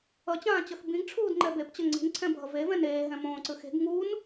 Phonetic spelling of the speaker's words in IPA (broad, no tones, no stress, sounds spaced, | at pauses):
ʌ t͡ɕ ãː t͡ɕ ʌ x b ĩ ɡ ʈ͡ʂʰ uː d ŋ͡ǃ ɛ b e p t͡ɕ ʌ ŋ͡ǀ i̤ n ǀʰ ɛ̃ bʱ ʌ v e v ɛ̃ n eː ɦ ɛ̃ m õː ǀ ɯ x e̤ ɡ ŋ u n